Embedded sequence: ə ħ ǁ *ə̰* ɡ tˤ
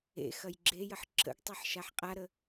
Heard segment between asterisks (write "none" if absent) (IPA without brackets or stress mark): ə̰